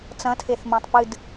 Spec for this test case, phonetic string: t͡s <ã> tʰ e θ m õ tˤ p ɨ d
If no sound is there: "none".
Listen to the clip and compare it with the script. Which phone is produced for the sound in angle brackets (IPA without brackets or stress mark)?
ɐ̃